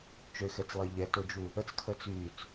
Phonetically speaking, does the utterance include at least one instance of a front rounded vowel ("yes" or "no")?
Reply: yes